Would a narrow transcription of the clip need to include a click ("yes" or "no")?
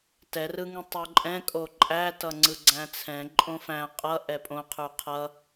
yes